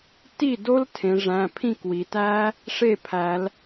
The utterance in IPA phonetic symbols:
t i˥˩ d o˦˥ l tʰ ẽ˩˧ ʐ æ̃˩˧˩ pʰ ĩ˥˩ k w i˩˧ t æ˦˥ | ʂ e˥˩ pʰ æ˩˧ l

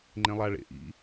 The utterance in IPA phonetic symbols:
ŋ͡ǃ ẽ lˠ a ɭ ḛ ʔ ḭ

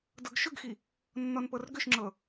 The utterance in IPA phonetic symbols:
d ɤ ɡ ʃ ʏ ɡ x i | nː ɔ n p ɤ r ɡ ʏ ʃ ŋ͡ǁ ɤ

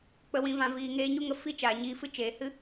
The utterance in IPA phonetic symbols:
k͡p ə˧ w ĩ˧ v ã˧ v iː˨ ŋ eː˧ ɲ u˦ ŋ ə˧ f i˦ t͡ʃ aː˨ ɲ iː˧ f ɨ˦ t͡ʃ eː˨ h ɨ˦

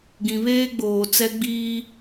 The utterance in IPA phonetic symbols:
ɡ ĩ˨ β eː˦ ɡ͡b oː˨ t͡s ɛ˦ ɡ͡b iː˦

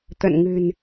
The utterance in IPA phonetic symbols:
t̪ ə̰˧˨ n ŋ ɨ̤˨˩ n

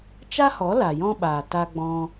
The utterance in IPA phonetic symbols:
t͡ʃ a˦ h ɔ˨˦ l a˨ j ɔ̃˦ ɓ aː˨ t a˦ ɡ͡b ɔ̃˦

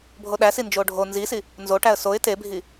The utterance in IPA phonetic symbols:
bʱ o ɗ æ s i n d͡ʒ o ɖʱ o n z i s i | n z o ʈ æ ə̯ s o ɪ̯ t e bʱ i

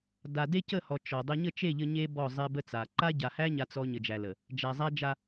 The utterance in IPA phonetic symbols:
d a˨ d e˦ c ə˦˨ h ɔ˨ t͡ʃ ɔ˨ dˤ ə˦ ɲ ə˦˨ t͡ʃ e˦˨ ʎ ə˦ ɲ e˦ b ɔ˦˨ zˤ e˦ b ə˦ t͡s a˨ ǃ a˦ ɟ a˨ h æ˦ ɲ a˦ t͡s ɔ˦ ɲ ə˨ d͡ʒ æ˨ l ə˨ | d͡ʒ æ˨ zˤ æ˦ d͡ʒ a˦

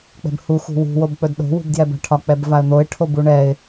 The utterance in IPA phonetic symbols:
k͡p ɛ̤ b h u x ṳ w ṳ w o b k͡p ɵ d ɗ o̤ w ṳ b d j ɛ b a̤ ʈʰ ɒ k͡p ɛ b v a ə̯ n̪ o ɪ̯ ʈʰ o b u ɳ ɛ ɪ̯

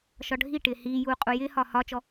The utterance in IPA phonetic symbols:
ʃ ɒ ɖʱ i ʈ ɪː h iː j uː qʼ u j ɪː h ɒː h ɒ t͡ʃ ɔ

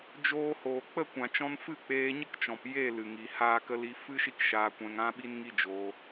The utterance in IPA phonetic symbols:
d͡ʒ oː˧ h oː˨ k͡p ə˦˨ kʷ ã˨ t͡ʃ ɔ̃˧ n f ɨ˦˨ k͡p eː˧ ɲ ə˦ k t͡ʃ ɔ̃˨ p j e˦˨ l ɨ˨ ŋ i˨ h aː˦ k ə˦ l i˦ f ɨ˦ ʃ i˦ k ʃ aː˧ kʷ ɛ̃˧ ŋ ã˦ ɓ i˦ n ŋ i˦ d͡ʒ oː˧

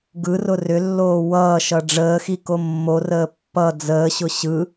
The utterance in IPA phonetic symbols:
ɡ ɯ r ʊ r ʏ lː oː w ʌː ʃ ʌ ɖ͡ʐ əː x i k o mː o r əː pː ʌ d͡z əː ɕ ʊ ɕ ɯ

